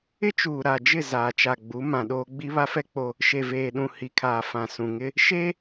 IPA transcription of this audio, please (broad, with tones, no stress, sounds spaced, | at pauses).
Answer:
ɪ˦ t͡ʃ uː˨ ɾ a˨ d͡ʒ ɪ˦˨ z aː˨ t͡ʃ a˨ ɡ͡b u˨˦ m ã˨ ɗ oː˦ ɡ͡b i˦ β a˦ f ɛ˦ k͡p o˦ | ʃ e˨ v eː˨ ɗ ũ˨ h i˨ kʰ aː˨ f ã˨ s ũ˨ ŋ ɪ˦ | ʃ e˦